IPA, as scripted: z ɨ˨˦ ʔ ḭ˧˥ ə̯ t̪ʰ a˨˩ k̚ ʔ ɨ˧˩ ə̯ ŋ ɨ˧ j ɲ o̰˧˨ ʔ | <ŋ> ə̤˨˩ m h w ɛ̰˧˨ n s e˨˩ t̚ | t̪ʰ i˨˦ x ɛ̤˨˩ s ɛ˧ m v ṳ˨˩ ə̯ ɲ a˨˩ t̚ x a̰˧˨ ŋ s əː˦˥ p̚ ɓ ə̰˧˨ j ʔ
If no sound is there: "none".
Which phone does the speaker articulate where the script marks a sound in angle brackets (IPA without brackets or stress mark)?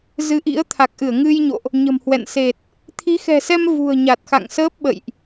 ɲ